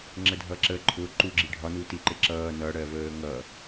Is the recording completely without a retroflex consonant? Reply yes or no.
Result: no